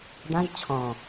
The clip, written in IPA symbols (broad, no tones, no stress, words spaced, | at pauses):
dãʒ t͡ɕʰɔ̃